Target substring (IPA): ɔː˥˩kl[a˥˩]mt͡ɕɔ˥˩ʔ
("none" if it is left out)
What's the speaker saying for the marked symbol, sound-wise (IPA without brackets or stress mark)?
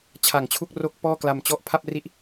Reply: a˧